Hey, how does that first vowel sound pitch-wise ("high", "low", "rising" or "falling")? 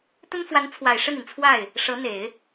high